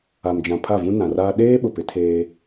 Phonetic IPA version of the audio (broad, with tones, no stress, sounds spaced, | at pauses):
a˨ m d͡ʒ ã˨ pʰ a˦˨ v ũ˦ n ã˨ r aː˦ ɗ eː˦ ɓ ʊ˨ p ɪ˨˦ tʰ eː˦